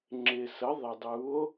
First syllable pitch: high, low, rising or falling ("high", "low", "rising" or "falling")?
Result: low